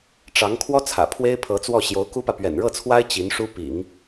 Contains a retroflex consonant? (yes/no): yes